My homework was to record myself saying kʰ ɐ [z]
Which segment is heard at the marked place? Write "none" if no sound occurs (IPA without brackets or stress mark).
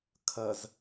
z